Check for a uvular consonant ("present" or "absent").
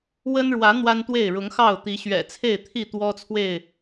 absent